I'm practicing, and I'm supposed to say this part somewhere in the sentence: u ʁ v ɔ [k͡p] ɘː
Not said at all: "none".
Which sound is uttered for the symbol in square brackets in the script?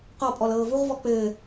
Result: k͡p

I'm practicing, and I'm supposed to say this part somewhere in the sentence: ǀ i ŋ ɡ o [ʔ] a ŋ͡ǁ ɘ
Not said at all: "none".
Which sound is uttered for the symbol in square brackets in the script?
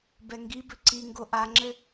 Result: ʔ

